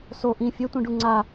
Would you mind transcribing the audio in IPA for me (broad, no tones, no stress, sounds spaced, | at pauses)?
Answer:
s o ʔ ĩ fʲ ɛ tʷ ĩ ɖ u ŋ͡ǀ a